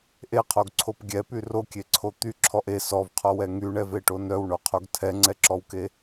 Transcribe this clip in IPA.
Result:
ʔeqʰoɡǀʰop ɡʲɛpy rokʲeǀʰo t̪yǁʰɔʔ e sɔvqʰɔwɛ ŋyɳɛveʈo nœwɳoqʰoɡ tʰɛŋ͡ǀɛǁɔwke

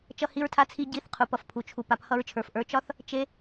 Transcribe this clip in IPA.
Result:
t͡ʃʌ˦hi˦ɹtʰa˦t͡sʰi˦ ɟi˦˨θqʰu˨p ʌ˨fpʰu˨t͡ʃʰu˨ pa˨p hʌ˧ɹt͡ʃʰə˞˨fʔə˞˨˦ t͡ʃɒ˦θ | t͡ʃe˦

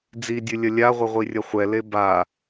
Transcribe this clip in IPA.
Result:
d͡zidʲɨlʲɐ lʲaʁʷɘʁʷi rʲɐχʷɛle ba

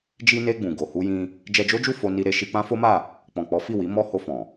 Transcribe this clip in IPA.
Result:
d͡ʒi˧ne˧ ɡ͡bũ˨ ɡo˨hu˧jĩ˧ | d͡ʒɛ˧d͡ʒo˦d͡ʒu˦˨ fo˧ ni˧ɾe˧ ʃi˧k͡pã˦fo˦ma˦˨ | k͡pɔ̃˨k͡pɔ˨˦ fi˦˨wi˨˦ mɔ˧ ho˧fɔ̃˨

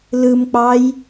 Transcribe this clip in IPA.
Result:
lɯmk͡pɑj

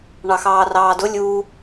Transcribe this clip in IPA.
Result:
ɳɑxɑːrɑːdʊ lʲuː

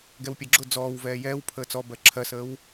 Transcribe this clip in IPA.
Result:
ɡɛwpʲɜɡ͡ǁʊ d͡zɔːwvɛː jɛːw pʰəːt͡sɔbɜ ǁʰɜsəːw

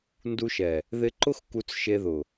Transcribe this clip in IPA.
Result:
ndu˧ʃɛ˨ | ðɪ˧ǃʊ˦x ku˧t͡sʃe˧ðʊ˨

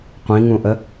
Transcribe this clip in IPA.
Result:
qʷĩŋũʔə

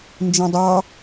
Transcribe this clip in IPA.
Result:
nd͡ʒĩdˤɑ

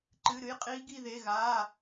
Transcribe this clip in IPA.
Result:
ǃɨ˧˥˧ɾɨ˦˥j qʼiː˦˥ɡi˥˧ðe˧˥˧ɣaː˧˥˧

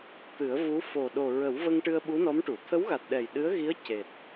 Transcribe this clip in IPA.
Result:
t̪ɨ˨˩˦ə̯vu˧˥ fo˨˩ ɗo˨˩ɹə˨˩˦wvə˧ŋ ʈɨ˧ə̯ɓu˧˥nɔ˧˥mʈu˨˩˨ t̪ʰə˧˥wɣa˨˩t̚ ɗɛ˨˩jɗɨ˧˥ə̯ɣi˧˥ə̯ ce˨˩t̚

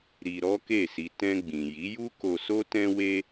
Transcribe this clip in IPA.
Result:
ɾi˧ɾɔ˦ke˦˨si˧ tɛ̃˧ɡ͡bĩ˨ji˨˦ju˦ ko˧so˦tɛ̃˦we˦

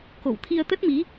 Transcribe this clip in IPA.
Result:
ko̰˧˨w t̪ʰi˧ə̯t̪ə˦˥t̚mi˨˦

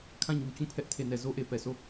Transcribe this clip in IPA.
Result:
kʰã˦˨ɲu˨t͡ɕũ˦˨ pʰɛ˦ʔtʰe˨nɛ˨ zo˦ʔe˨pɛ˨sʰo˦˨

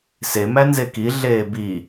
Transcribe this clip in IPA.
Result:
se mænzeki ɮeːbi

